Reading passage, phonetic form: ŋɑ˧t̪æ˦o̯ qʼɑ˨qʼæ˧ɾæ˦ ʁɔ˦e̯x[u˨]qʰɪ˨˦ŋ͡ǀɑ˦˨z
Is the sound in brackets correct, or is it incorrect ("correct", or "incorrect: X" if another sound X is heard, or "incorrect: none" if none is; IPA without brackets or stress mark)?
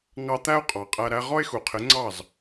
correct